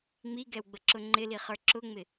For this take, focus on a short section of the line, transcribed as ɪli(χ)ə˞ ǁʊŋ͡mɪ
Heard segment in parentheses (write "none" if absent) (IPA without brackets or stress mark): χ